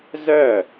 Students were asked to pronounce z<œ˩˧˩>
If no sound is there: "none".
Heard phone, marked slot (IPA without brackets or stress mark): œ˥˩